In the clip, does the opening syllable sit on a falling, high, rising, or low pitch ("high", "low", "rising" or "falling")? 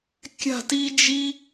falling